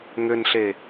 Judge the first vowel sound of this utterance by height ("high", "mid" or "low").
high